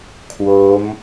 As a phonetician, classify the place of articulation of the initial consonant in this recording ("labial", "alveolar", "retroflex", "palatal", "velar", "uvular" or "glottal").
velar